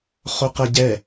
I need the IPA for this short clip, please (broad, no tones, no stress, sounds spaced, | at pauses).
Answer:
χ o q ɜ ɟ ɛ